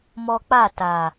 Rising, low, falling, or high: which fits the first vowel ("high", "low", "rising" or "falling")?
high